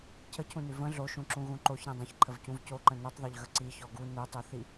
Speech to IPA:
cʰ ə cʰ ũ n ʉ v ə̃ ɮ o ʃ ũ ǁ ũ ɣ ũ ǃ o ç ɾ ĩ dˤ ə̃ ç ǃʰ ə v c ũ v c o ǃ ə̃ n u tˤ ðˤ o ʎ ɣ ə ǀ i ç ɔ ɡ u n u tˤ u θ i

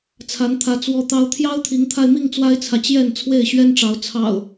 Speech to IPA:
t͡sʰ a˨˦ n t̪ʰ ä˨˦ t͡s w ɔ˦ t̪ ɑ˦ ʊ̯ t̪ʰ j ɑ˦ ʊ̯ t̪ʰ i˨˦ ŋ t̪ʰ a˧ ɪ̯ m i˥˨ ŋ t͡s w a˦ ɪ̯ t͡sʰ ä˨ t͡ɕ j ɛ˥˨ n t͡sʰ w e˥˨ ɪ̯ ɕ ɥ ɛ˦ n ʈ͡ʂ ɑ˨˦ ʊ̯ t͡sʰ ɑ̰˨˩ ʊ̯

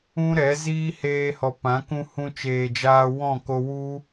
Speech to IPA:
ũ˦ ɾ ɛ˨˦ z iː˦ h eː˧ h ɔ˨ p ã˨˦ k ũ˧ h ũ˧ t͡ʃ eː˨ d͡ʒ aː˧ w ɔ̃˦˨ k o˧ w u˦

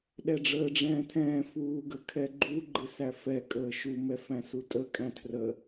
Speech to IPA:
ɗ ɛ ɖ͡ʐ əː ɖ͡ʐ ɛ̃ː tʰ ɛ̃ː f uː ɡ ə kʰ ɛ ɡ͡ǃ u ɡ͡ǃ ɪ s æ f ɛ kʼ əː ʃ u m ɛ f æ̃ s u tʼ ə kʼ æ̃ tʰ r ə

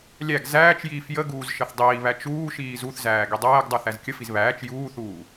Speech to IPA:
lʲ æ ɡ z æː t͡ʃ j iː f j ə ɡ uː z ʃ ə θ dˤ iː β æ t͡ʃ uː ʃ iː z u θ z æː ɡ i dˤ æː ɡ dˤ u θ æ z kʲ ə f i z β æː t͡ʃ j uː θ uː

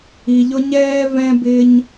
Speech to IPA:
i˧ ʎ ʊ˦ ɲ ɛː˦ v ɛ̃˦ b ɪː˦ ɲ

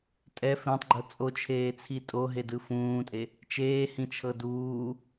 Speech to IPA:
tʼ ɛ f ẽ tˤ ɡ͡ǃ ɤ t͡sʼ o t͡ʃʰ eː t͡sʰ i tʼ o ɦ e d ɯ f ũː tʼ e | t͡ʃ eː h ĩ t͡ʃʰ ɤ d uː

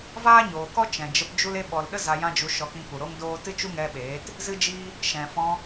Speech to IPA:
v aː˦ ɲ oː˨ k ɔ˦ t͡ʃ ɛ̃˨ d͡ʒ ə˧ p d͡ʒ u˦ l e˧ ɓ ɔ˨ l ɗ ə˦ z a˧ j ã˦ d͡ʒ u˧ ʃ ɔ˧ k ĩ˧ p u˨ ɾ o˦ ŋ d oː˦ t ɨ˦ t͡ʃ u˦ ŋ ɛ˧ ɓ eː˨˦ t | z ɨ˦ d͡ʒ iː˦ | ʃ ɛ̃˨ f ɔ̃˧

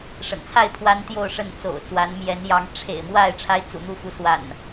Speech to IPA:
ʂ ə̰˨˩ n t͡sʰ a˥˨ ɪ̯ pʰ w a˦ n t̪ j o˥˨ ʊ̯ ʂ ə˥˨ n t͡s o̰˨˩ ʊ̯ t͡s w a˨˦ n m j ɛ˨˦ n j ɑ˨˦ ŋ ʈ͡ʂʰ ḛ˨˩ ɪ̯ m w a˥˨ ɪ̯ ʈ͡ʂʰ a˦ ɪ̯ t͡s ṵ˨˩ n̪ u˥˨ f u˨˦ s w a̰˨˩ n

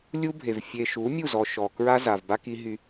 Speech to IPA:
lʲ u˦ bʱ e˨ v fʲ e˨ ʃ u˨˦ mʲ u˦˨ z ɔ˨ ʃ ɔ˨ k ɹ a˦ z a˨ v b a˦ k i˦ ɦ y˦

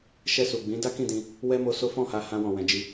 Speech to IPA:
ʃ ɛ˧ s u˨ ɡ͡b ĩ˨˦ d a˦ k ĩ˦˨ d ĩ˧ | w ɛ˦ m o˧ s o˦ f ɔ̃˦˨ h a˧ h ã˧ w ɔ̃˨ w ɛ̃˨ d͡ʒ i˧

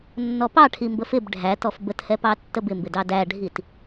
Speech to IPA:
nː ɔ p ɑ ʈʰ i m b ə f ɪ b ɖʱ æ t ɔ f b ə t h ɛ p ɑ tː ə b ɪ m b ɪ d ɑ d æ ɖʱ i t

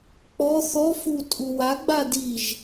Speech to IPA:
k͡p ɔ θ ɔ f u tʼ u w a ɡ͡b a d i ʒ

